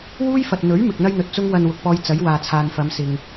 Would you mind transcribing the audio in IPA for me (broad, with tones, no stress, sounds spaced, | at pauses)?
w uː˥ j f ɐ˨ t̚ n̪ ɵ˨˥ ɥ m ɪ˨ k̚ n̪ ɐ˥ j n̪ ɵ˨ t̚ t͡s ʊ˥ ŋ w ɐ˧ n w ʊ˨ k̚ p ɔː˧ j t͡s ɐ˨˥ j w aː˨ t͡sʰ aː˨ n f ɐ˨˧ m s ɪ˨ ŋ